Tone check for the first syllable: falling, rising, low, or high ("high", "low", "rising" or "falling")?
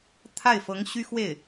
falling